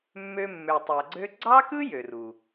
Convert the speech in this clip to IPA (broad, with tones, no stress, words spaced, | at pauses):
mːø˧mːø˨tˤæ˨ɡ͡ǀø˦ ɡ͡ǀɑ˦kɯ˦ jø˨ru˨